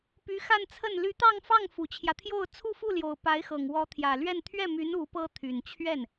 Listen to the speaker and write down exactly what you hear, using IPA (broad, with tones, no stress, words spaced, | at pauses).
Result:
py˧˥xa˥˧nt͡sʰə˥˩n ly˧˥t̪ɑ˥˧ŋfɑ˥˩ŋ fu˨˩t͡ɕʰjä˦t̪ʰjo˥˧ʊ̯ t͡sʰu˥˧fu˥˩ljo˨˩ʊ̯ pa˧˥ɪ̯xɤ˨˩ŋ wɔ˧˥t̪ʰjä˨˩lɥɛ˥˧n t̪ʰɥɛ˥˩my˧˥n u˧˥pɤ˥t̪ʰy˨˩n t͡ɕʰɥɛ˥˩n